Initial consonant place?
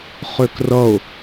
uvular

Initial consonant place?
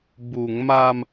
labial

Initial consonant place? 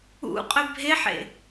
uvular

